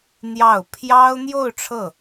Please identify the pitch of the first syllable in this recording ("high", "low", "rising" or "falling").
falling